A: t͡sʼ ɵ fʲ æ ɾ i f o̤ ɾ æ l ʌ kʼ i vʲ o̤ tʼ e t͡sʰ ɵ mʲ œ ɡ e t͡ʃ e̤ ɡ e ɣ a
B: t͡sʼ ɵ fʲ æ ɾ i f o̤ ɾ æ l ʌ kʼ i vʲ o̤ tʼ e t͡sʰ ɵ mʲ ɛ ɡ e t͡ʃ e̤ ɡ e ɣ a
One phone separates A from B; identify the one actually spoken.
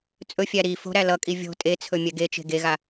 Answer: B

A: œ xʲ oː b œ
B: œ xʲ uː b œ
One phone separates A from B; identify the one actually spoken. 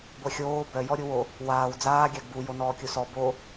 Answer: A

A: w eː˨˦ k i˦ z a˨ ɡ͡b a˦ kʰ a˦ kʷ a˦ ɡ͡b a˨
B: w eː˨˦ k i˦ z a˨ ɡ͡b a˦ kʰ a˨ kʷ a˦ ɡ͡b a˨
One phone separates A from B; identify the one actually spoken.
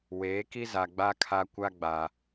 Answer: A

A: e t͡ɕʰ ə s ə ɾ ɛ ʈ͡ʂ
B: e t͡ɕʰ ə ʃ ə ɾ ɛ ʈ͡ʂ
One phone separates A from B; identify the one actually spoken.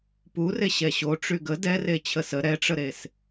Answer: A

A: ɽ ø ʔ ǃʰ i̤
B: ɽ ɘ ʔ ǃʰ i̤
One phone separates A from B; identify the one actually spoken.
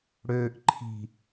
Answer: A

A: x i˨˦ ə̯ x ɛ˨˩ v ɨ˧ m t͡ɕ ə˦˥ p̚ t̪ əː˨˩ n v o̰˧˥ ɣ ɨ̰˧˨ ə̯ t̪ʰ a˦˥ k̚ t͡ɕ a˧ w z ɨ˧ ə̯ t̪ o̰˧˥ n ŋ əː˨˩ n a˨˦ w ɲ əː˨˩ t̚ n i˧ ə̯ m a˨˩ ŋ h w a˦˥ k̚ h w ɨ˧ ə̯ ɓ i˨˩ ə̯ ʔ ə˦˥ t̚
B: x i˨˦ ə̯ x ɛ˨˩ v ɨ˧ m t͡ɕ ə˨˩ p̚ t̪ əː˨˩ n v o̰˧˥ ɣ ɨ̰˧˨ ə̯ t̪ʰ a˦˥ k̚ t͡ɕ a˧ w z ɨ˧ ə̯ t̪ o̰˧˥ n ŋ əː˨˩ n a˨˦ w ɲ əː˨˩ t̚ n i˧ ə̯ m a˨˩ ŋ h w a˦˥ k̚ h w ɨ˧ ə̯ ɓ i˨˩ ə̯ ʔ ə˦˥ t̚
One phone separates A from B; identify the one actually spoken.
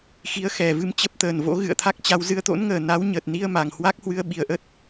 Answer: A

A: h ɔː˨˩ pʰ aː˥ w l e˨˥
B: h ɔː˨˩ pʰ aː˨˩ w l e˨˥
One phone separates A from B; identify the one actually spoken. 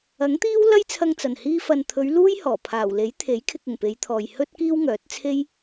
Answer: B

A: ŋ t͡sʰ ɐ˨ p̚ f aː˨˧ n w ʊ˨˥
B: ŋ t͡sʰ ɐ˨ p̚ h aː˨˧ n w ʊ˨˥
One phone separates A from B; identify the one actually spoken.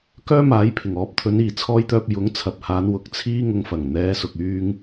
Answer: B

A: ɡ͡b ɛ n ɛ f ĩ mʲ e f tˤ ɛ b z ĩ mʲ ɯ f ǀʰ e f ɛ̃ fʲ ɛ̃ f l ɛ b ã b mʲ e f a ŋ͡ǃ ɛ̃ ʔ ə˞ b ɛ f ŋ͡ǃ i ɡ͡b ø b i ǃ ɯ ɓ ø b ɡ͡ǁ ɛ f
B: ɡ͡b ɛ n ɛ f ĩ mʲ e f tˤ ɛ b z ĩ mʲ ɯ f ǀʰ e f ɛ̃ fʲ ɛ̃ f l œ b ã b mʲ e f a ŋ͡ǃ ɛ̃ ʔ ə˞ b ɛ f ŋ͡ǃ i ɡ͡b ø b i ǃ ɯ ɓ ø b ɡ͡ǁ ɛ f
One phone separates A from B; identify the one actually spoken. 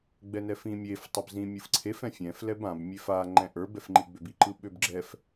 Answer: A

